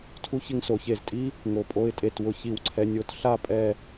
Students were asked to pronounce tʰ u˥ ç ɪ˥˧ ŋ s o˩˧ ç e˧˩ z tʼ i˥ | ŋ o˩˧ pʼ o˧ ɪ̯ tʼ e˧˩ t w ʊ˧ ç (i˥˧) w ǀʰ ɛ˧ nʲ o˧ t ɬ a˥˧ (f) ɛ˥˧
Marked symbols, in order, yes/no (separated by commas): no, no